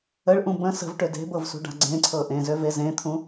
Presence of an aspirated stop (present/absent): present